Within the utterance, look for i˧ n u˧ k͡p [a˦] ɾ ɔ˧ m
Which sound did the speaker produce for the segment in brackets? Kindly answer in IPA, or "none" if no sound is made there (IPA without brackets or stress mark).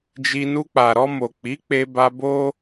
a˨